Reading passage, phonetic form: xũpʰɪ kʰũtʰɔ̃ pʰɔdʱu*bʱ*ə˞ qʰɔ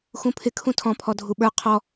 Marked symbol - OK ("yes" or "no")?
no